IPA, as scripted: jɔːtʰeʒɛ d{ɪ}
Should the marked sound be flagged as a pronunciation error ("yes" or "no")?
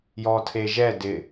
no